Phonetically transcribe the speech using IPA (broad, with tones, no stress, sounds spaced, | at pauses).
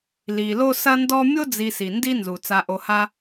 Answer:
l i˩ l o˦ s ɐ˦ n d ɔ˦ mʲ o˥ d͡z i˨ s i˩ n d i˦ n z u˩ t͡s a˨ ʔ o˨ h a˦